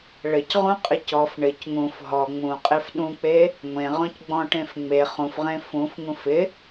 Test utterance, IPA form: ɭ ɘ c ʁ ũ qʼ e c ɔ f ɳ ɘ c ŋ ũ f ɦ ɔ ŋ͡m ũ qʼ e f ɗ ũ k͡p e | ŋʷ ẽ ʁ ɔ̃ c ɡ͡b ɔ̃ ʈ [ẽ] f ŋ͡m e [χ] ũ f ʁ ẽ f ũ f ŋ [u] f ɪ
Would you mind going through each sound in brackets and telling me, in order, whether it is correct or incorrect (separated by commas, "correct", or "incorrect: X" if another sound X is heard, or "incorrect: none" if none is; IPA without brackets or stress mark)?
correct, correct, incorrect: ũ